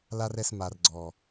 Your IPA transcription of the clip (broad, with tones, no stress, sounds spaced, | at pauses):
l a˦ r ɛ˧ s m a˨ r ɡ͡ǀ ɔ˨